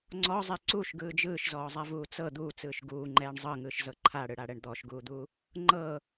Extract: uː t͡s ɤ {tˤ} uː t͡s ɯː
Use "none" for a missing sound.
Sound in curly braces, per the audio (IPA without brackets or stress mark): d̪